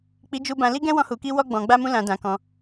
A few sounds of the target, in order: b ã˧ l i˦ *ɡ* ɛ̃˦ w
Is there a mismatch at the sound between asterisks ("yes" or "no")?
no